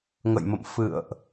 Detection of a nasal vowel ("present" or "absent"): absent